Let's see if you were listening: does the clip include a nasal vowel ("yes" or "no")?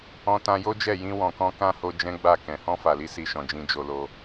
yes